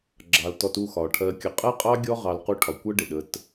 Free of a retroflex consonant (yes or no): no